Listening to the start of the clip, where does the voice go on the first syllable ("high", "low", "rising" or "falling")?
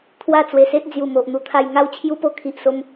falling